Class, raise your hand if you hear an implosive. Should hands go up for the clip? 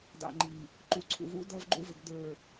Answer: no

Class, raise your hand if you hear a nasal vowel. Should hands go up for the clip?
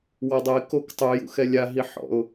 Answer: no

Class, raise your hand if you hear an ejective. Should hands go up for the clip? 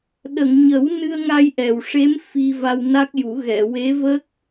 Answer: no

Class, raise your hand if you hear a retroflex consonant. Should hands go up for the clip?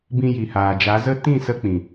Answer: no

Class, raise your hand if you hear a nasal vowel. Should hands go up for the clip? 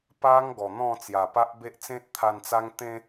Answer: yes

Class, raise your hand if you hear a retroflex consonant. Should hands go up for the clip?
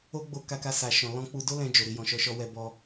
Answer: no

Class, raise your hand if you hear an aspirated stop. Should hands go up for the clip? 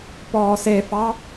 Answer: no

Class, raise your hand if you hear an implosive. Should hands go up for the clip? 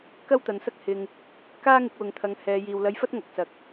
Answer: no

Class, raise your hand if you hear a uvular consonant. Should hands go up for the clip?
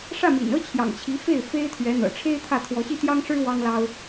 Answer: no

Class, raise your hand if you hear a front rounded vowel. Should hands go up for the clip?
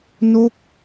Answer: no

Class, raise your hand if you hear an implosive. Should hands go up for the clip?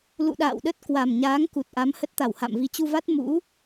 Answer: yes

